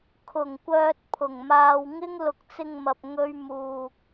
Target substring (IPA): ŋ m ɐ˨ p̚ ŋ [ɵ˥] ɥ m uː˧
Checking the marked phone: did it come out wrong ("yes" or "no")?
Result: no